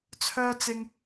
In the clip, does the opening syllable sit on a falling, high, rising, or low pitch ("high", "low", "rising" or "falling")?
high